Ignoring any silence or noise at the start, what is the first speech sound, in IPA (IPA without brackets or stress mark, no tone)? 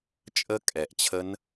t͡ʃʼ